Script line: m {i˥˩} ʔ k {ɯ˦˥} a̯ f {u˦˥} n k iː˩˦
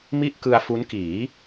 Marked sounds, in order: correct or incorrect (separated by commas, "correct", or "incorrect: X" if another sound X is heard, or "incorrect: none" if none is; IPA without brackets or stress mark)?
correct, incorrect: ɯ˧, correct